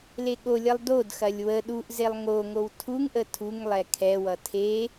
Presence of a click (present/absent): absent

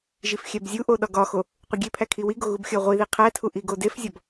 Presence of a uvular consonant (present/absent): present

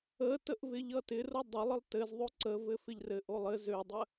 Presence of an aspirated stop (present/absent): absent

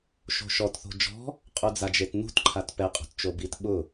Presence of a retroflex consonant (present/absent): absent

